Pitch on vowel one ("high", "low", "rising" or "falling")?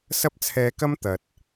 high